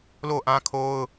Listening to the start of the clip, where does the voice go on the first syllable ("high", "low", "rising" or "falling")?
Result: falling